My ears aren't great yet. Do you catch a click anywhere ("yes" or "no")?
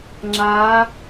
yes